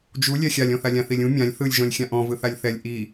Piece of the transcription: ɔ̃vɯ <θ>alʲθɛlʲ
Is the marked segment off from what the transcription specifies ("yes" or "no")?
no